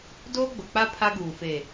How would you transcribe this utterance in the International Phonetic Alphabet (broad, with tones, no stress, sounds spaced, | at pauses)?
d oː˦ ɡ͡b ʊ˨ k͡p a˦ pʰ a˦ ɡ uː˨ f e˨